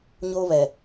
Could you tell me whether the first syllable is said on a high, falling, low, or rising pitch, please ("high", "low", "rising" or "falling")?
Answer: high